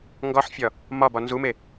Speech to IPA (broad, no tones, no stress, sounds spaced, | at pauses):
ŋ ɡ ɒ ħ fʲ ɒ | m ɒ b ɒ n z u m e